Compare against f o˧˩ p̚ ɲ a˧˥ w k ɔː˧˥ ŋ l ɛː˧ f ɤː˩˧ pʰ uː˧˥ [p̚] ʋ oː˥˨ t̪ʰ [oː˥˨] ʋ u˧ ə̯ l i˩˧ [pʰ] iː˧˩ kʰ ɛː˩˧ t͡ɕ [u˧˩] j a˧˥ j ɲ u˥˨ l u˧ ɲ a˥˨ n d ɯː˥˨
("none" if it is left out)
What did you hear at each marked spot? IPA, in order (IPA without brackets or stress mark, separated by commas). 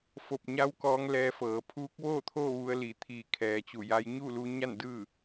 k̚, oː˥˨, t̪ʰ, u˧˩